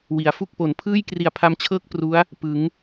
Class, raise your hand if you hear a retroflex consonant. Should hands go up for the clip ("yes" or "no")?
no